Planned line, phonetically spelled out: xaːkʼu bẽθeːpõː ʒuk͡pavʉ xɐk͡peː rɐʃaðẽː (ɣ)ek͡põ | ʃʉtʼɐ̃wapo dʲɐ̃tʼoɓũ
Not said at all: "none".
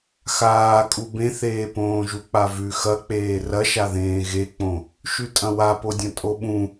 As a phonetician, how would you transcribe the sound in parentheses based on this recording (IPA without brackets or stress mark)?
ɣ